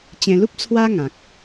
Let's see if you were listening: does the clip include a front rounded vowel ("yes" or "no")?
no